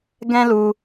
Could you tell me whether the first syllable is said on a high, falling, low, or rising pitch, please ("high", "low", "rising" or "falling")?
high